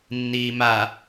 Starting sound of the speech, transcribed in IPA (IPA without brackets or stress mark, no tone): nː